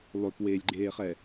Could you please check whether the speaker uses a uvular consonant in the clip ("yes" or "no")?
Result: yes